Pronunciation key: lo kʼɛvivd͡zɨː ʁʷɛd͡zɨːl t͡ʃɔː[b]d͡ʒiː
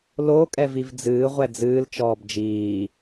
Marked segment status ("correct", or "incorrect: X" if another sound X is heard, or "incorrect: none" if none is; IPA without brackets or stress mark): correct